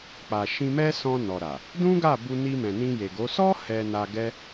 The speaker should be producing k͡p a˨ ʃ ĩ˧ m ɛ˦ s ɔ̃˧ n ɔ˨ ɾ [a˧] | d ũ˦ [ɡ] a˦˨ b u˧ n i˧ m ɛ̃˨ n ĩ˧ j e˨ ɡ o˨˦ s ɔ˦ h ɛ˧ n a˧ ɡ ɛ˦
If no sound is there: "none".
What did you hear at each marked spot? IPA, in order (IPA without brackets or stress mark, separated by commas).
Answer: a˨, ɡ